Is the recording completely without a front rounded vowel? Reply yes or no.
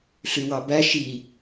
no